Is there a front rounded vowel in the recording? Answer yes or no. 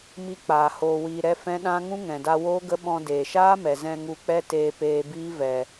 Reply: no